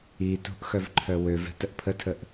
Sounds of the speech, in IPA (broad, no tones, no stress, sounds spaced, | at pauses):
i t o̤ ʔ x œ v ǃʰ œ w ø v ɛ̤ t ə ʔ pʰ ə tʰ ə ʔ